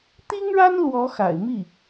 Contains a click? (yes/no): no